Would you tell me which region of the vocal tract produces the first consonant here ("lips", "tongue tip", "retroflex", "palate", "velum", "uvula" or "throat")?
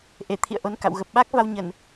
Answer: throat